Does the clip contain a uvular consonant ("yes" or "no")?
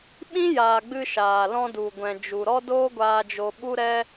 no